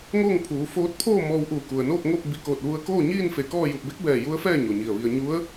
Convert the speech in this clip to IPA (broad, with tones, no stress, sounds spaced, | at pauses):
ŋ oː˥˨ ŋ pʰ uː˩˧ f oː˧˥ t̚ pʰ oː˥˨ m ɔː˧ w ʔ uː˧˩ k u˩ ə̯ n oː˥˨ k̚ ŋ o˥˨ p̚ b i˧˩ k oː˧˩ t̚ ʋ u˧ ə̯ k oː˥˨ ɲ iː˥˨ n f e˧˩ k ɔː˥˨ j u˧˩ p̚ b e˧˥ k̚ b ɛː˧˩ j u˧˥ ə̯ f ɛː˥˨ ɲ o˩ ɲ i˧˩ ə̯ ʋ i˧ ə̯ ɲ u˧˥ ə̯